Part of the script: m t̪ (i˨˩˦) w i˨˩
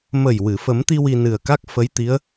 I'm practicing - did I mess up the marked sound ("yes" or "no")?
yes